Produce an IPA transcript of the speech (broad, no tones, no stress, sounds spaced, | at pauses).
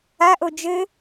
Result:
a ʔ o d͡ʒ ɘ